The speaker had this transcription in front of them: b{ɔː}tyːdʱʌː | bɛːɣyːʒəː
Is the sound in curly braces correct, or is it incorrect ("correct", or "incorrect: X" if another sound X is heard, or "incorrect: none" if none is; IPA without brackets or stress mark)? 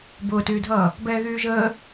incorrect: ʊː